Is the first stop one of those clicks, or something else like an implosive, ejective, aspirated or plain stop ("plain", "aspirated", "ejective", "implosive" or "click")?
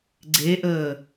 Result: click